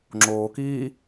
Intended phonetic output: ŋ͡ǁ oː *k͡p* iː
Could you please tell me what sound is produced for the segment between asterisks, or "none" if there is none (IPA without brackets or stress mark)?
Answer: k